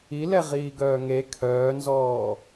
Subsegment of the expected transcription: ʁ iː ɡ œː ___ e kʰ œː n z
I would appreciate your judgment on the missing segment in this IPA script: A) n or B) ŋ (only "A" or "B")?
B